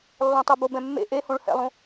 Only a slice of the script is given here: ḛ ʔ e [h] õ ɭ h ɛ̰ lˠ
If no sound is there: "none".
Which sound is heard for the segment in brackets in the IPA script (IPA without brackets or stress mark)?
h